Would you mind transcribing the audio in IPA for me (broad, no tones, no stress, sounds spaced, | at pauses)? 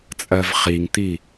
t͡sʼ ɜ v χ i ŋ t̪ i